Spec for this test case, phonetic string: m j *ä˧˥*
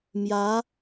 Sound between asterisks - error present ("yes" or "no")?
no